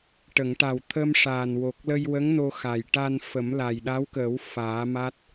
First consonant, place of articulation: retroflex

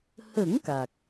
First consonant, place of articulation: glottal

